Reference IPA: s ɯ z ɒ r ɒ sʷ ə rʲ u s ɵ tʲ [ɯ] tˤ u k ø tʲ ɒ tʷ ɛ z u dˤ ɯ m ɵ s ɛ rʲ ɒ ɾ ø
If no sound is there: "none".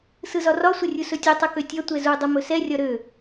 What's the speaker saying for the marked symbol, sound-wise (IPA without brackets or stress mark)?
ɯ